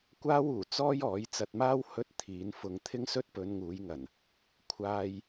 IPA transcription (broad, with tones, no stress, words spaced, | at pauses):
kʷaː˥wuː˨˩ t͡sɔː˥jɔː˨˥j t͡sɐ˧t̚maː˥w hɵ˥t̚ t̪ʰiː˨˥nfʊ˧ŋ t̪ʰɪ˥ŋsɵ˥t̚pɵ˨˧n ŋuː˨˥jŋɐ˨˩n | kʷʰaː˧j